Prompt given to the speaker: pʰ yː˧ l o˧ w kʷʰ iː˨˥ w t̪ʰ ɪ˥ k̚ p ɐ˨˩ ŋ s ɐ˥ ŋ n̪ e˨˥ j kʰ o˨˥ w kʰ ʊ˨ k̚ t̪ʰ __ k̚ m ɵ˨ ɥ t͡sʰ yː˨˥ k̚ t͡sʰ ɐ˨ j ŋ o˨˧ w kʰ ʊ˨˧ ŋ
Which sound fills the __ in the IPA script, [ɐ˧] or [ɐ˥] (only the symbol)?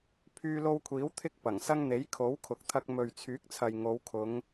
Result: ɐ˧